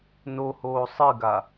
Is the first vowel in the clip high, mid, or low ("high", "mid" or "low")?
mid